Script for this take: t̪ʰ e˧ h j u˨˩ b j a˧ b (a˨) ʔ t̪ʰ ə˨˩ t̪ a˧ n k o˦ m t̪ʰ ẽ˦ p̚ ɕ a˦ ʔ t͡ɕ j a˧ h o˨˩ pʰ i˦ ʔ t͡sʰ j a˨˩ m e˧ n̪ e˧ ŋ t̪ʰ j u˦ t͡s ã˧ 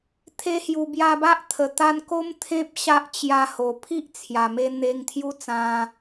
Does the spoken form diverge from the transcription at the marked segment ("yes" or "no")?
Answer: yes